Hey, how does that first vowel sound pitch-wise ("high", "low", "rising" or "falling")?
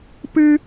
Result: high